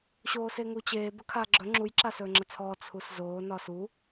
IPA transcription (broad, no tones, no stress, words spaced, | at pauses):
ɕoːseŋut͡ɕeː bəkʰaːɡ͡ǁɵ ŋ͡ǁuj ǁasɵːŋ͡ǁət͡sʰɔː t͡sʰuszoː nɒsu